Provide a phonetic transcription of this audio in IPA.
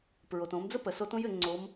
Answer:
p ɹ o˩ t õ˩˧ m d͡z ə˥ p ə˩ s o˧˥ t õ˥ j ɘ˩˧ ŋ͡ǀ o˧˥ m

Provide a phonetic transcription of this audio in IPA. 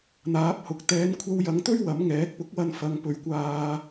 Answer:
n̪ aː˨˥ p̚ h ʊ˨ k̚ t̪ ɛː˨˧ n kʷʰ ɐ˧ w j ɐ˨˧ ŋ t̪ ɵ˥ ɥ w ɐ˨˥ m ŋ ɛː˨˥ k̚ p ʊ˨˥ k̚ w ɐ˧ n f ɐ˨˧ ŋ p ɵ˨˥ ɥ kʷ aː˧

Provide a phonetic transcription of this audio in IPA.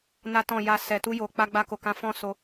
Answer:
n a˦ t ɔ̃˦˨ j a˧ s ɛ˨ t u˧ j o˨ k͡p a˧ ɡ͡b a˧ k o˨ k ã˨˦ f ɔ̃˦˨ s o˧

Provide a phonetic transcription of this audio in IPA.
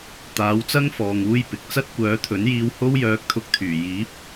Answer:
t̪ aː˨˥ w t͡s ɐ˥ ŋ f ɔː˨ ŋ uː˧ j p ɪ˨ k̚ t͡s ɐ˥ t̚ kʷ œː˨˥ t̪ʰ ɵ˨˥ n j iː˧ w h o˥ w j œː˧ k̚ t̪ʰ ʊ˧ k̚ t̪ʰ yː˨˩ j iː˨˥ p̚

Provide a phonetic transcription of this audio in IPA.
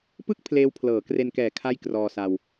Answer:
p ɯ˥˩ k̚ pʰ l eː˦˥ w pʰ l ɤː˩˦ k r e˧ n k ɛː˨˩ kʰ a˥˩ j k r ɔː˧ s a˧ w

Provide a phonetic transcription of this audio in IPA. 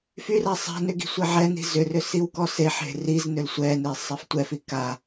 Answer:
f y r a sˤ a̤ n ʏ ɡ i̤ sʷ ɛ ʕ ɛ n i̤ z ʏ r ʏ s i w k ɔ s e ħ e̤ r i z n ʏ l sʷ ɛ n e sˤ a f tʷ ɛ f i k a

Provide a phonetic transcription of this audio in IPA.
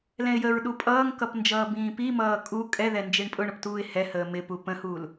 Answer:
l ɛ̃ ɪ̯ j ə ɹ ɗ u pʼ ʌː ŋ k ʌ p n d͡ʒ ʌː b ĩː p i m ʌː kʼ u kʼ ɛ ð ɛ n d͡ʒ i ɳ pʼ ʊ ɳ ʊ p t uː ɪ̯ h ɛ h əː m ɪ p u p ə̃ h uː l

